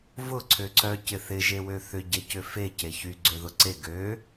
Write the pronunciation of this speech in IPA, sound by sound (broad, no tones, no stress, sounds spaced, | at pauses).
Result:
v ʊ ǀʰ ø ǀ œ c ɪ θ ɪ ʒ e w ø θ ʏ ɟ e c ʏ f e c e ç y ɡ͡ǀ ø ð ʊ ǀ e ɡ ø